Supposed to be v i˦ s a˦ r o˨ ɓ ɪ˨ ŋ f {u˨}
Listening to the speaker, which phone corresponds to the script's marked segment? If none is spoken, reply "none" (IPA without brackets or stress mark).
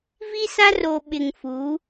u˨˦